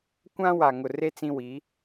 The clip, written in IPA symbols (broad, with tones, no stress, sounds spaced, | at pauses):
kʷ ã˦ w a˨ ŋ ʊ˨ r e˦ t͡s ĩ˦ w i˨˦